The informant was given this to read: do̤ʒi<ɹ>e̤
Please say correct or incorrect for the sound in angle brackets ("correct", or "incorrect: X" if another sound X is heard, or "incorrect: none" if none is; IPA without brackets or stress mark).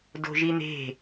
incorrect: n̪